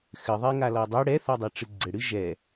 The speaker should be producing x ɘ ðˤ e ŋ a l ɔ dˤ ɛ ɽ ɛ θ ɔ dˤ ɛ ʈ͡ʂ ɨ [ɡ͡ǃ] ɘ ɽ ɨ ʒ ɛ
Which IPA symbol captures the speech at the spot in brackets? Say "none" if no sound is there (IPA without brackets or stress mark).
ɡ͡ǀ